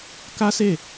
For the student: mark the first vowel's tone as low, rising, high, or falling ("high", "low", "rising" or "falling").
high